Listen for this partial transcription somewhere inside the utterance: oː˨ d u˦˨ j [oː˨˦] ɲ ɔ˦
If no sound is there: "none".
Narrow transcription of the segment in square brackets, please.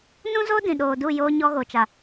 oː˦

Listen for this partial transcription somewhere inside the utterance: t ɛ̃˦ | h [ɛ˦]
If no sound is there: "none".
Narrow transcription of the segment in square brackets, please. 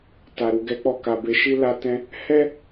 ɛ˦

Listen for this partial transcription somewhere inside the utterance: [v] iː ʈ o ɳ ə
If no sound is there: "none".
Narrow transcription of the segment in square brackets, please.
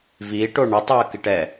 v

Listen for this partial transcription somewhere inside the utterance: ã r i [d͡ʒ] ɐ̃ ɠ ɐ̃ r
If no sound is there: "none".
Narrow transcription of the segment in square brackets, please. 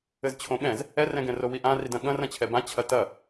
d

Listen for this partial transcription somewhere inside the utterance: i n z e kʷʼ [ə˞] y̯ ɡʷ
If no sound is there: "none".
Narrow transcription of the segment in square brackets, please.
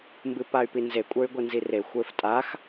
ə˞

